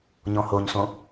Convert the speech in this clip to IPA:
ɲɔ̃hoɲsõ

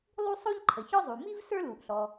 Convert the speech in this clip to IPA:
lˠu˥ sˤo˥ʎǃʰə˩ çɔ˥zˤu˩ mi˥v sə˞˥lu˩ʔɬɔ˩

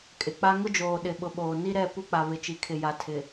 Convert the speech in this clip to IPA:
kʼɪ˨k͡pa˦ ŋʊ˦d͡ʒoː˨ ɗɪ˨ɓʊ˨ɓoː˨ ni˦ɾɛ˦˨ pu˦k͡pa˨ βɪ˨t͡ʃi˨kʰɪ˨ ja˨ tʰɪ˨

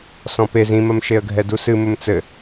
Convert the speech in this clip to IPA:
sɔ̃pez ĩmɐm ʃeə̯ɡʱɛdusɨ mɘmt͡sɘ

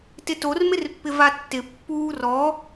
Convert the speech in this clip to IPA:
tɪtor mɪrpːɪvatːɪ pːuːrɔ

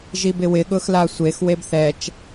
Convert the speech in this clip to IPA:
ʒibɪwɪ ɠʊxlasʷex webθɛt͡ʃ

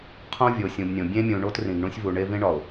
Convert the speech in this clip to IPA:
qʰõ˦vʲo˨sʲũ˨bnʲõ˨ bʲẽ˦mʲũ˨ɳo˦t rĩ˨ɡɳũ˦sʲvu˨ ɳe˦vĩ˦ɳɒ˨ʊ̯

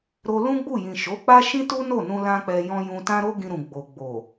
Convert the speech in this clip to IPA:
ɾo˧ lũ˦ɡ͡bu˦˨jĩ˨ ʃo˨˦k͡pa˦ʃĩ˦tu˦ no˦˨nũ˧ lã˦k͡pɛ˧jɔ̃˦ jũ˧tã˦ɾo˦ɡĩ˧ ɾũ˨ɡ͡bo˨ɡ͡bo˨

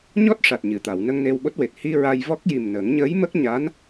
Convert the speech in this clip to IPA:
ɲɔ˦˥t̚ʂa˨˩t̚ɲɨ˨˩˨t̪a˨˩˨w nə˧ŋ ne˧wɓo˦˥t̚we˨˩t̚ hi˧ ɹa˧jvɔ˦˥k̚ ji˨˩m nə˨˩˦ŋ ɲəː˧˥jmə˦˥k̚ ɲa˧˥n

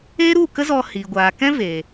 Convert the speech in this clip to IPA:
e˦ɾu˦˨kə˦zɔ˧ hi˨ ɡʷaː˨kɛ̃˦ veː˨

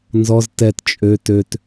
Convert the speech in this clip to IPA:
nzɔz tɛt t͡ʃʼø tøt

